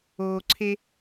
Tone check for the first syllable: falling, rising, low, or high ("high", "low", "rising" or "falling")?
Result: low